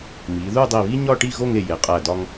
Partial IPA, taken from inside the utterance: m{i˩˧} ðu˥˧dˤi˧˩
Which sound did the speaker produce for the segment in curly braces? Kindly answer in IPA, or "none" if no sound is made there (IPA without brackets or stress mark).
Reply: i˩˧